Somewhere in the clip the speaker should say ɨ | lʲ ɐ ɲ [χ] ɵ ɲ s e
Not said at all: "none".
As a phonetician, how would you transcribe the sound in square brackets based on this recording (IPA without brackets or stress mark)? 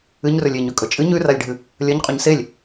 qʼ